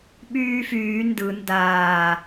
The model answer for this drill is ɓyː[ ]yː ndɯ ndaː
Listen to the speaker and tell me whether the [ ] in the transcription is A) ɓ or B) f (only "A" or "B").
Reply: B